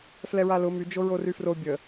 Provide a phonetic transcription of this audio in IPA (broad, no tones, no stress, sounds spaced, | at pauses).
f l ɛ ɹ a l ʊ m y d͡ʒ o ɹ o r y f r o bʲ ə